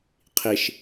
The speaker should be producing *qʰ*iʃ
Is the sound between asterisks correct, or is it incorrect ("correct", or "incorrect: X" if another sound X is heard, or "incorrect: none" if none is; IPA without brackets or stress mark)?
correct